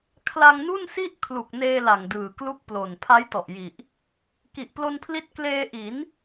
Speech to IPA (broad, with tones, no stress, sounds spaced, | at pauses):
kʰ l a˧ ŋ n u˥˩ n s i˥˩ ʔ kʰ l u˨˩ k̚ n eː˧ l a˨˩ ŋ d ɯː˨˩ k l u˥˩ k̚ p l o˨˩ n pʰ a˦˥ j t ɔ˨˩ ʔ j i˨˩ ʔ | k i˨˩ ʔ p l o˧ n pʰ l i˦˥ t̚ k l eː˧ ʔ i˩˦ n